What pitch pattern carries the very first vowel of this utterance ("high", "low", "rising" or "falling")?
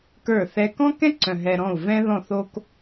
falling